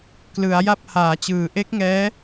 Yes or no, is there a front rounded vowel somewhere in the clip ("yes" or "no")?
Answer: no